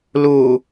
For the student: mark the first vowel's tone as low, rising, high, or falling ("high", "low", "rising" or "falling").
low